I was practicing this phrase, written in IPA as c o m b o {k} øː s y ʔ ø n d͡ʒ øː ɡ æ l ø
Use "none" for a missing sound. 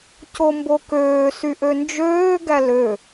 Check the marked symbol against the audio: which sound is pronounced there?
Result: k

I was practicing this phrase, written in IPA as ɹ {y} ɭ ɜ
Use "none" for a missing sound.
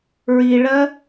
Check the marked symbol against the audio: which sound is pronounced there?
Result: i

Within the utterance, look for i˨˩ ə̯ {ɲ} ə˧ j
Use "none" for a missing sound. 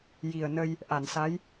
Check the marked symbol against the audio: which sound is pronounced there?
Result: n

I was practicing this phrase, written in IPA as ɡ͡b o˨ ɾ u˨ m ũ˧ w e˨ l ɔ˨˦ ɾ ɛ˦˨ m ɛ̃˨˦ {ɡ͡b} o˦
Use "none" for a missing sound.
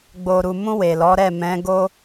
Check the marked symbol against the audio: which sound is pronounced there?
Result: ɡ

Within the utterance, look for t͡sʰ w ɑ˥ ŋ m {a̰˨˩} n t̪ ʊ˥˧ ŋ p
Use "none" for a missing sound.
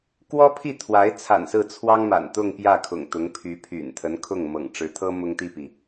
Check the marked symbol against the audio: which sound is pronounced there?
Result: a̰˨˩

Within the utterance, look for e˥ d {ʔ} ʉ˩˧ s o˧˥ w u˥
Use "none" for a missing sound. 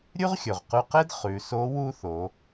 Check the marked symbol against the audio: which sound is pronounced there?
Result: χ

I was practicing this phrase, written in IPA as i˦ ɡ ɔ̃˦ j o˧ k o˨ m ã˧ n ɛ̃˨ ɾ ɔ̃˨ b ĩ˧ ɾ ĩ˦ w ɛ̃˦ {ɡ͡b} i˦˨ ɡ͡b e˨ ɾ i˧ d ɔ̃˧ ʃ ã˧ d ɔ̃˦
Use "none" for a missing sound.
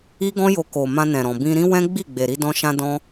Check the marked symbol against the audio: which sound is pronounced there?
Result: ɡ͡b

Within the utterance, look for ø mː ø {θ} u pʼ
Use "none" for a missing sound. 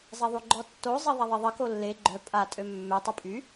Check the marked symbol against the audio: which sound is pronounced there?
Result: tˤ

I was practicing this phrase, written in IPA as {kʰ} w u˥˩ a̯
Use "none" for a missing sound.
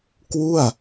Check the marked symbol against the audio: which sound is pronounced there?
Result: k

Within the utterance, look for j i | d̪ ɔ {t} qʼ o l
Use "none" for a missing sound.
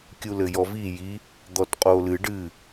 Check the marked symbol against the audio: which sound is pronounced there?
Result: t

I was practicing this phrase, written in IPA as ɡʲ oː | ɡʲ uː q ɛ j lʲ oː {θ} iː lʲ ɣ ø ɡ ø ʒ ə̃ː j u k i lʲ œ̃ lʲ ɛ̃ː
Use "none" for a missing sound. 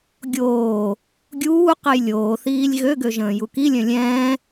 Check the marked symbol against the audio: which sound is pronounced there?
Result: θ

